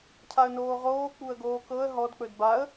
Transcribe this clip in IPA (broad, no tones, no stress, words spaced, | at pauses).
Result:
cʰaə̯noːʁoː k͡puə̯ɡoːkɤə̯ ɦɔd k͡pɵdbaə̯